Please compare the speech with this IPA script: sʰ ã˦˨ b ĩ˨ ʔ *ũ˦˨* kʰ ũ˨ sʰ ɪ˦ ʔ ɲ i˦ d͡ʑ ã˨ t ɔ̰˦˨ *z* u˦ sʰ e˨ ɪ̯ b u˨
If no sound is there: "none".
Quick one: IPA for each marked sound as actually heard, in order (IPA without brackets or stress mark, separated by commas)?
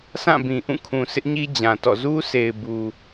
ũ˦˨, z